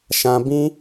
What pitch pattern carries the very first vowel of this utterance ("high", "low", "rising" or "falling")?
low